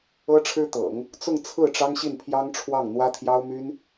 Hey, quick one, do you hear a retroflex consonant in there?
yes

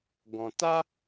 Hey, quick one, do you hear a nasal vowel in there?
yes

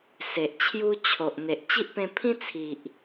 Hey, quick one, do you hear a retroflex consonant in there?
no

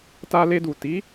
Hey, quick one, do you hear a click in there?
no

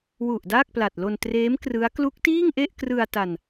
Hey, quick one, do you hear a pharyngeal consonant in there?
no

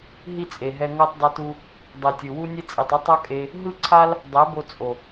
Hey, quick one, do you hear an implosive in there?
no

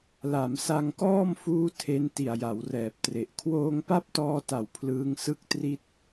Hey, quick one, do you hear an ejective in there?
no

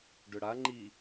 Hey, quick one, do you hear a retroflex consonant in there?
yes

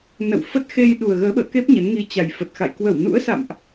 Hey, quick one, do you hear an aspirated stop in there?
no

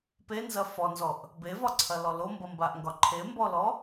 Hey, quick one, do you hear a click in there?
yes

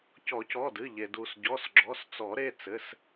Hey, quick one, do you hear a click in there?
yes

